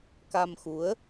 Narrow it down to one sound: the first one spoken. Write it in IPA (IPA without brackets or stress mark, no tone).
k